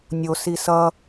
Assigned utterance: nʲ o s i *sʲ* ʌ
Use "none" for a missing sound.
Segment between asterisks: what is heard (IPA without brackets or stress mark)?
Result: s